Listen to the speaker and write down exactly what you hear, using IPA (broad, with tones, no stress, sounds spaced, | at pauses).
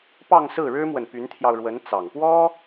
p ɑ˥˧ ŋ s ɹ̩˥˩ ɻ ɻ̩˥ m w ə˨ n p y˧˥ n t̪ʰ j ɑ˧ ʊ̯ ɻ w ə˧˥ n t͡s ɑ˨˩ ŋ p w ɔ˥